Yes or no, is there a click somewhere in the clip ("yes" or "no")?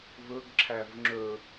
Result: yes